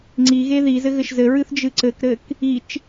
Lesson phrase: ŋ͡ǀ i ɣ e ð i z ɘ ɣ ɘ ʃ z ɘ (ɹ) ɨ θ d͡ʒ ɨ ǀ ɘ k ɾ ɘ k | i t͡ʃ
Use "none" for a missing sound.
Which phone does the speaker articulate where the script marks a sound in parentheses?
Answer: ɹ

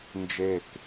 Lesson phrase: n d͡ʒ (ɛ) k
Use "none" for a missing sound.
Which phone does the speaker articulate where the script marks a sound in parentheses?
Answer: e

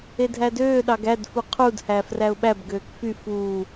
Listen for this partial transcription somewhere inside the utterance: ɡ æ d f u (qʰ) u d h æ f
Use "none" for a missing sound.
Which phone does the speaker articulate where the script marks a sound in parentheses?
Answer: qʰ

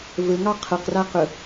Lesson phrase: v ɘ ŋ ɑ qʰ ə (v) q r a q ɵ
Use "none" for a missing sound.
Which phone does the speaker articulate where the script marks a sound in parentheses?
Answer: none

